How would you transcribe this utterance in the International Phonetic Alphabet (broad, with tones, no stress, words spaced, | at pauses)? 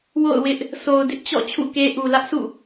wo̰˦˨ʊ̯wɪ˦ʔ | so˨ʊ̯dɪ˦ʔt͡ɕɔ̰˦˨ t͡ɕʰṵ˦˨ke˦ ʔu˨ lä˦ʔsṵ˦˨